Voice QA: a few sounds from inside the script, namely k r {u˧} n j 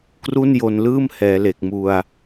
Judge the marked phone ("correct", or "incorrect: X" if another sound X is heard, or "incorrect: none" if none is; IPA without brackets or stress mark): incorrect: u˥˩